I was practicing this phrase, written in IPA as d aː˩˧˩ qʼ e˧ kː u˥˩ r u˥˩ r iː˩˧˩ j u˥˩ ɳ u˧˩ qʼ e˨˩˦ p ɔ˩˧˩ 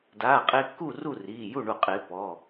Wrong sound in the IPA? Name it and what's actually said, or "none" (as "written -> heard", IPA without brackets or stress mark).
none